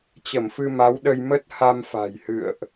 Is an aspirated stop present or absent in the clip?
absent